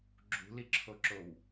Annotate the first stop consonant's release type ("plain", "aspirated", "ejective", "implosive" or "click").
click